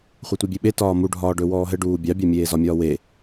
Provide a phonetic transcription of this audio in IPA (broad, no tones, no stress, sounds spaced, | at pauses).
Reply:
χʷ e tʷ e bʲ e ɓ e t ɒː m u ɖʱ ɒː ɖ ɵ w ɔː ɦ ɘ ɖ uː bʲ ɑ bʲ ɑ mʲ eː z ɒ mʲ ɒː w e